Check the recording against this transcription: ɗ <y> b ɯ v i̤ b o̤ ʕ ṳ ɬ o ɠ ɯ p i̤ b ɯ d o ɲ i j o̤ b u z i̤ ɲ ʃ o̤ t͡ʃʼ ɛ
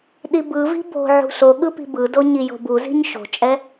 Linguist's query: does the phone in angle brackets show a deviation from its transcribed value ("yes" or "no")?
yes